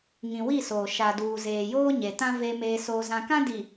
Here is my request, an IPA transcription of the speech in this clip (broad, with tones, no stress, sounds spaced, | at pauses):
ŋ ĩ˨ w i˦˨ s oː˨ ʃ a˨ d uː˨ z eː˨ j oː˦ ɲ e˨ t ã˦ v e˦ m eː˦ s oː˦ z ã˦ k ã˦ d i˨